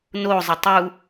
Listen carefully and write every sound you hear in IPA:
n o zˤ ɪ tˤ u

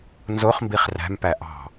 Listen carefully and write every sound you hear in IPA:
n z o χ m b i χ r æ̤ m p æ ʔ ɑ̤

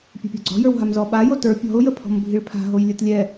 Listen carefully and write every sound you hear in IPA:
pʲ a̤ pʲ ɔ̤ ɡ͡ǀ ɔ̤ j ə˞ w ɦ a m z ɔ ɓ a j o t ə˞ pʲ ɔ̤ ʊ̯ j ə pʰ ɔ̤ m bʱ i ɭ pʰ a̤ ɦ o j lʲ ɯ t lʲ ɛ

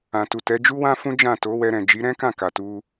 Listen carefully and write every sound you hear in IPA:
ã˨ t u˨ t ɛ˨˦ d͡ʒ u˦ w ã˦ f ũ˦ d͡ʒ ã˦˨ t o˨˦ w ɛ˧ ɾ ɛ̃˨ d͡ʒ i˨˦ ɾ ɛ̃˦ k ã˦˨ k a˨ t u˧

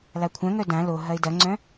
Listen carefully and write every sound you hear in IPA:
l a kʷʰ œ̃ ŋ œ d ã l o ɦ ɐ ɪ̯ d ɐ ŋ͡ǀ œ̃

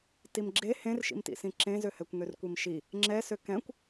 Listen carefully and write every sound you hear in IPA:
t i m ɡ͡ǁ e h ẽ r ʃ ḭ m t ḭ s ĩ ǁ ẽ z ø h ɛ kʷ ŋ ø r kʷ i m ʃ i | ŋ͡ǁ ɛ s ø k ɛ̃ kʷ

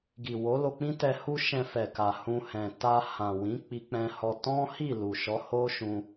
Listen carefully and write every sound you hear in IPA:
ɡ i˨ w o˨˦ l o˧ k͡p ĩ˦ t ɛ˧ h u˦ ʃ ɛ̃˧ f ɛ˨ k a˨ h ũ˧ h ɛ̃˨ t a˧ h ã˨ w ĩ˨˦ k͡p i˧ k͡p ɛ̃˧ h ɔ˧ t ɔ̃˦ h i˦˨ l u˨ ʃ ɔ˨˦ h o˦ ʃ ũ˧

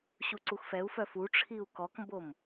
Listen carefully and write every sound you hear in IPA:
ɕ u ǀ u x f ɛ u̯ f œ f u ʈ͡ʂʰ i u̯ k ɔ k m b o m

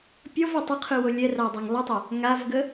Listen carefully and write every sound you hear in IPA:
pʲ ɔ v ɛ tˤ ə qʰ ɯ w o lʲ ɛ r a dˤ o ŋ lˠ ɯ tˤ ɛ | ŋ a v ɡ ə

